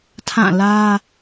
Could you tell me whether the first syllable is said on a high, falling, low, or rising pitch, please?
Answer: falling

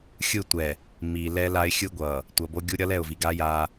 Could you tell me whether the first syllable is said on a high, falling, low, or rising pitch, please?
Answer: falling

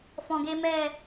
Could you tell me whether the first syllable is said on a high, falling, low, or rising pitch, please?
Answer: low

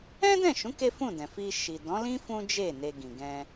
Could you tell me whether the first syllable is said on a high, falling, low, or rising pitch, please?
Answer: high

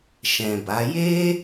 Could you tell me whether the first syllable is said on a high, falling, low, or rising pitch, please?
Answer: low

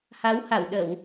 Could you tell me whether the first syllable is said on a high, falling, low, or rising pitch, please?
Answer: rising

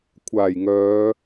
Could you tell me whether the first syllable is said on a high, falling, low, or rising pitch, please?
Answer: low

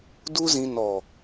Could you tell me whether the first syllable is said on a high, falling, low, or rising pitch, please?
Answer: high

